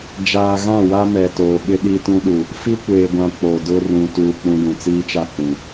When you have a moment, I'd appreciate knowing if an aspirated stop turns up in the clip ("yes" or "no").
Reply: no